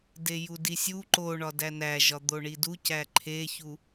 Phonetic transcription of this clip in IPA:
d e j u d i sʲ u ǃ o ɳ ɒ d æ n æ ʒ ɒ d̪ o ɳ i d u c æ ǃʰ e ç u

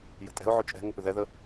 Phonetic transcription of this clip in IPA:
j ə̤ tʼ ɛ̤ ʊ̯ ʕ ʏ t͡ʃʼ ɛ̤ ŋ ə p ʏ ð ɛ ð ə

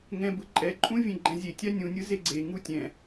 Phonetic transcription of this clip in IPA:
ŋ ɛ̃ b ɯ ǃʼ ɛ ǃʼ ũ vʲ ẽ ɡ͡ǃ ɛ̃ zʲ e tʲ a nʲ ũ nʲ ɯ z e ɡ͡ǀ e ŋ u tʲ ɛ̃

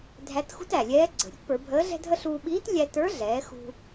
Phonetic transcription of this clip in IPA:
dʱ æ˧˥ t x ṳ˥ t æ˩ lʲ ɛː˧˥ ɡ͡ǀ ə̤˩ ɾʲ ə˧˥ t p ə˞˩˧ bʱ əː˧˥ ɮ ɛ̤˥ dʱ ə˥ ɬ uː˧ ɓ iː˧˥ t lʲ æ˧ t ə˞˧˥ ɮ ɛː˩˧ x ṳ˧

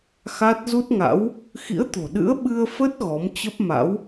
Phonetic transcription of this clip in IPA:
x a˦˥ t̚ z u˦˥ t̚ ŋ a̰˧˥ w | x ḭ˧˥ ə̯ t̪ o̤˨˩ ɗ ɨ̰˧˥ ə̯ ɓ ɨ˧ ə̯ f ə˦˥ t̚ ɣ ɔ˨˦ m t͡ɕ ə˦˥ p̚ m a̰˧˥ w

